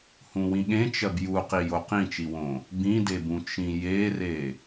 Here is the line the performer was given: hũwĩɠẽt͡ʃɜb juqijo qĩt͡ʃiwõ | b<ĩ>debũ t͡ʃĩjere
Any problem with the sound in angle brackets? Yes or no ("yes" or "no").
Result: no